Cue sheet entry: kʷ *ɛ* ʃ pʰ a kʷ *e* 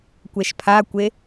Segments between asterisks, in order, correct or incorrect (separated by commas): correct, correct